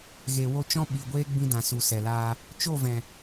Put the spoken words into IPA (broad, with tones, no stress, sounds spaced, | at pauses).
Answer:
ɣ e˨ w o˧ t͡ʃ ɔ̃˦ ɓ i˨ ɡʷ eː˦ ɡ͡b ĩ˧ d ã˨ s u˨ s ɛ˨ l aː˧ | t͡ʃ o˦˨ v ɛ̃˨